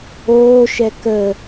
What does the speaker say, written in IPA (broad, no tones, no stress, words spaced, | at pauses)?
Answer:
oːʃɛ kə